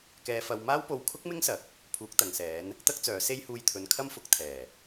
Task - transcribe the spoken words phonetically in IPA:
k ɛː˧ f ɐ˧ w m aː˥ w p o˧ w kʰ ʊ˥ k̚ m ɪ˥ ŋ s ɐ˨˥ k̚ | pʰ uː˨˥ k̚ t̪ ɐ˨ ŋ s ɛː˨˥ n | t̪ ɐ˥ k̚ t͡s œː˨˥ s e˥ j h uː˧ j t̪ʰ ɵ˨˧ n kʰ ɐ˥ m f ʊ˨˥ k̚ t̪ʰ ɛː˨˩

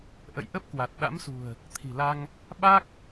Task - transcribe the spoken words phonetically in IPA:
ʔ ə̰˧˨ j ʔ ə˦˥ p̚ k w a˨˩ t̚ ɗ a̰˧˥ m s ṳ˨˩ ə̯ | t̪ʰ i̤˨˩ l a˧ ŋ | ɓ a˦˥ k̚

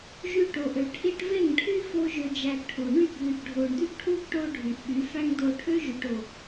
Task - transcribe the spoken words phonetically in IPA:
ʒ y˧ ʈ o˨ ʔ ø˨ ʈʰ i˧ ʈ v e˦˨ ŋ ʈʰ y˦ f o˦ ʒ ø˧ d͡ʒ æ˧ ɡ ʈʰ u˨ ɳ y˦˨ ɡ ð y˨ ɡ ɖʱ o˨ ɳ d̪ y˦ ɡ ʈʰ u˦ ɡ ʈ o˦ ɖʱ y˨ ʔ ɓ y˨˦ f æ˦ ŋ d o˧ ʈʰ ø˦ ʒ y˨ ʈ o˨

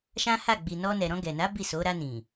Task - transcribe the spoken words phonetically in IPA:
ʃ ã˦ h a˦˨ ɡ͡b i˨ n ɔ˧ n ɛ˨ ɾ ɔ̃˧ ɡ ɛ˨ n a˨˦ b i˦˨ s o˨˦ ɾ a˧ n ĩ˨

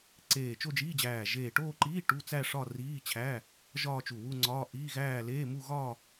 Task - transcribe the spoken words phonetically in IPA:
ǀ eː˧˩ t͡ʃ o˥˧ d͡ʒ iː˧˥˧ d͡ʑ æː˧˩ ʒ eː˧˩ ʈ oː˥˧ ǃ iː˧˥˧ ʈ u˧˥˧ t͡s æ˥˧ ʂ ɒ˥˧ r iː˧˥˧ t͡ɕʰ æ˧˥˧ | ʒ ɒː˥˧ t͡ʃ u˧˩ w u˥˧ ŋ͡ǀ ɒː˧˥˧ ʔ iː˧˥˧ ɣ æː˥˧ l eː˧˥˧ m u˥˧ ɣ ɒ˥˧

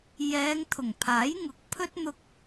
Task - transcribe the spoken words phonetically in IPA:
j ɛː˨˧ ŋ t̪ʰ ʊ˨˩ ŋ pʰ aː˨˥ j ŋ ʊ˨˥ k̚ pʰ ɵ˥ t̚ n̪ ʊ˧ k̚

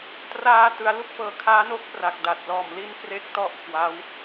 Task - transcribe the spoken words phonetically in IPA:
t r aː˧ t ɯ˩˦ a̯ l u˥˩ k̚ p ɤː˨˩ kʰ aː˦˥ n o˦˥ k̚ p r a˨˩ k̚ d a˨˩ t̚ l ɔː˨˩ m l i˥˩ n k r e˦˥ k̚ t ɔ˥˩ ʔ kʰ w a˦˥ w

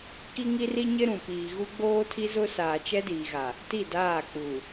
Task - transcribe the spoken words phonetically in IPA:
k i˦ ŋ i˦ r i˦ ɲ ɪ˦ ɾ ũ˨ p iː˨ ɣ u˦ ɡ͡b oː˦ tʰ i˦ z ʊ˦ s aː˨ t͡ʃ ɛ˦ d iː˨ ɣ a˨ | t i˦˨ d aː˦˨ k͡p u˨

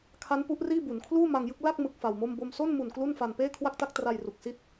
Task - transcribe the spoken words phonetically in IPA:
kʰ a˦˥ n p u˦˥ ʔ r iː˥˩ b u˩˦ n kʰ l uː˥˩ m a˧ ŋ j ɯ˥˩ k̚ l a˥˩ k̚ m ɯ˦˥ k̚ f a˧ w m o˥˩ m b o˧ m s o˥˩ n m u˨˩ n k l u˥˩ n f a˧ n p eː˥˩ kʰ w a˥˩ k̚ t a˥˩ k̚ t r a˧ j r u˨˩ k̚ s i˦˥ t̚

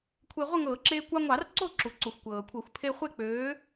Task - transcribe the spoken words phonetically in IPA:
kʷʰ e˧ ʁʷ ɤ˥˨ ŋ ɤː˧˩˧ ǁ eː˧ kʷ ɑ˧ ŋʷ ɑ˧˩˧ r ǀ o˥˨ ǁ u˩ ǀ u˩ xʷ kʷ ɤː˩ kʷʰ ɤ˧˩˧ xʷ pʰ e˧ χʷ e˥˨ k͡p øː˨˥

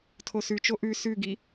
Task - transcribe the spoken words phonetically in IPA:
tʰ o s ʉ t͡ʃ o ʔ ʉ s ʉ ɡ i

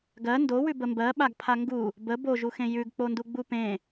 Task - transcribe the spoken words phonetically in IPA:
ɡ ɜ n d o w ʉ b ə m b ɜ ɓ a ɡ pʰ a ŋ ɡ u | b ə b o ʒ u x ẽ j ʉ ɡ k͡p o n d u ɡ͡b u p ẽ

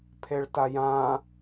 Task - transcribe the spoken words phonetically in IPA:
pʰ e ɭ t a j ã

